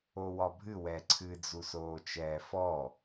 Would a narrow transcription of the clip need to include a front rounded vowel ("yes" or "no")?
no